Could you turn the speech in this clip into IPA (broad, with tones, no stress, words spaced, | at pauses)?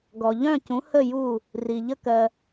ɡɔ˨ʎœ̃˦˨cũ˨˦ hə˦˨ju˦˨ | ri˨ʎə˦kɜ˧